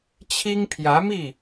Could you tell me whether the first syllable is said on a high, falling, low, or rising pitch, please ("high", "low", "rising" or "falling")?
high